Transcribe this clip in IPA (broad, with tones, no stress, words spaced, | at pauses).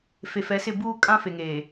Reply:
fe˨fɛ˨˦sɪ˦˨ buː˦ kʼã˦fe˨ŋeː˨